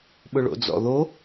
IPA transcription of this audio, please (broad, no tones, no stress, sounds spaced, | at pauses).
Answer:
ɓ ʊ ɭ o̰ d͡z ɔ̰ ð o